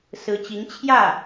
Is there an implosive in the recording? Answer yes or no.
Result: no